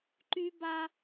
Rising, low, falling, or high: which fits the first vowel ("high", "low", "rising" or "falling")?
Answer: high